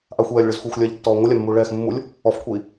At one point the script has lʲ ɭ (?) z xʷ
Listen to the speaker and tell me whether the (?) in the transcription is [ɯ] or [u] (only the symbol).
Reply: ɯ